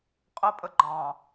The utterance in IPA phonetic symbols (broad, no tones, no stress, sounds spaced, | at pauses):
qʼ ə pʼ ə ɡ͡ǃ ɑ̃